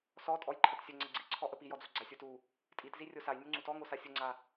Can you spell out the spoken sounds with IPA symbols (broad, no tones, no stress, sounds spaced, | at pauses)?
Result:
s ɔ tʼ ɔ j ǃʰ ə t sʲ ə ŋ͡ǀ ə ɡ͡ǀ i ǀʰ ɔ ʔ ə p i j ɔ d͡z o ɡ͡ǀ a sʲ o t u | tʼ i t z i rʲ o s a j nʲ u ŋ͡ǀ u t ɔ ŋ o s a sʲ ʊ ŋ͡ǀ a